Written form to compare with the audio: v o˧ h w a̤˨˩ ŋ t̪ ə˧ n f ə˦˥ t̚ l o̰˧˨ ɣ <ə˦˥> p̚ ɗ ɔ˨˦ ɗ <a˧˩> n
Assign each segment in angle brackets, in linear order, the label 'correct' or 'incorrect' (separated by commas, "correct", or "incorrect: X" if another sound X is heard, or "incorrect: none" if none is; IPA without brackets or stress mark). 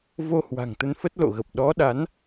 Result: incorrect: ə˨˩, incorrect: a˨˦